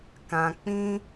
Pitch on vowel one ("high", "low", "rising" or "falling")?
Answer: low